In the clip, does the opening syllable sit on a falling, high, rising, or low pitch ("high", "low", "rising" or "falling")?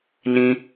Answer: high